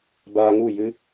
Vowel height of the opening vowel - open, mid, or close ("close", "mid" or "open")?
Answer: open